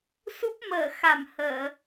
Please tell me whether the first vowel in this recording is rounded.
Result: yes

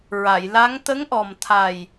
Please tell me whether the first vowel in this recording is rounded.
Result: no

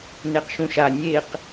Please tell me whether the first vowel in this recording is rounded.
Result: no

